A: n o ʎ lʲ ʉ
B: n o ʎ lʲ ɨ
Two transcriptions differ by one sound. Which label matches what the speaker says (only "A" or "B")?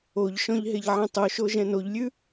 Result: A